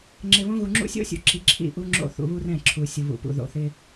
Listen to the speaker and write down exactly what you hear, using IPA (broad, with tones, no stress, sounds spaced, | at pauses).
ŋ͡ǁ ɪ˨ β õ˦ ɣ u˨ ŋ͡ǁ ṵ˦ sʲ o̰˦ sʲ ṵ˨ ǁ i˨ ǁʰ ḭ˦˨ ʔ u˦ ŋ͡ǁ o̰˦˨ θ ṵ˨ β u˦ r ɛ̃˦˨ ǁʰ u˨ sʲ u˨ β ṵ˨ p ṵ˨ ð o̰˨ θ ɪ˦